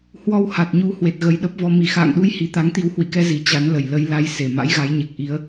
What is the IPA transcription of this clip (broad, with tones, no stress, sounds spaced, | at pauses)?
h w ɔ˧ w h a˨˩ t̚ ɲ u˨˦ h w e˨˩ t̚ ɣ ə˨˩ j ɗ ə˦˥ p̚ v ɔ˧ m i˧˩ x a̰ː˧˨ ŋ ɗ u˨˦ j h i˨˩ t̪ a˨˦ ŋ t̪ i˨˦ w h w ḭ˧˨ k ɛ˧ z i˨˩ t͡ɕ a˨˦ n l ə˨˩ j l ə˨˦ j l a˨˦ j s e˧˩ m a̰˧˥ j ɣ a˨˦ j ɲ e˨˩ k̚ ʔ i˨˦ ə̯